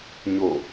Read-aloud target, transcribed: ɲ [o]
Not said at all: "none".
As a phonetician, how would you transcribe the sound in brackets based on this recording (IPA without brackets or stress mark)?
o